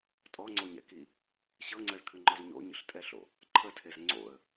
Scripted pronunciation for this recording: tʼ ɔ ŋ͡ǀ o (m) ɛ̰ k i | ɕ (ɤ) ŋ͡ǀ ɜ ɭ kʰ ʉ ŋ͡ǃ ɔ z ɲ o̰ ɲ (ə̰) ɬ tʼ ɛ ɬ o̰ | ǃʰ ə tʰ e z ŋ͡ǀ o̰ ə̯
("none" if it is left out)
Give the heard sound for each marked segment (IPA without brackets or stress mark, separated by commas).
ɲ, ɤ, ə̰